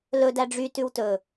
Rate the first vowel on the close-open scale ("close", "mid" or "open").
mid